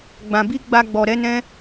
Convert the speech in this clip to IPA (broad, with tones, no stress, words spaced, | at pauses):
ɡ͡bã˨bi˧ ɡ͡ba˧ɡ͡bɔ˨ɾɛ˨˦nɛ̃˦